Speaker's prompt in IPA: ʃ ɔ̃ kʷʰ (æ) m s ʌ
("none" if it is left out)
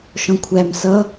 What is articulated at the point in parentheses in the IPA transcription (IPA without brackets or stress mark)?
æ